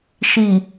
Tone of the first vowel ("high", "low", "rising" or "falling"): low